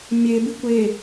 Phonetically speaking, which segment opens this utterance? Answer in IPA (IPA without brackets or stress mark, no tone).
mʲ